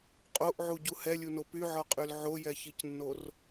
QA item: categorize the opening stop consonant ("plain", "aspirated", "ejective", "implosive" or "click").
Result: ejective